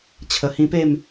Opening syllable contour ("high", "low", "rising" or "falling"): low